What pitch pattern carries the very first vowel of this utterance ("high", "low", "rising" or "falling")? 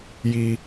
high